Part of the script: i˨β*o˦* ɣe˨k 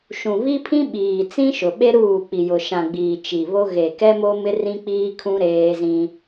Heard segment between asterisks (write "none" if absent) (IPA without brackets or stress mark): o˦